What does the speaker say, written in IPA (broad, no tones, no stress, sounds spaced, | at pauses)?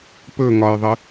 p ɵ ŋ ɒ j ðˤ ɨ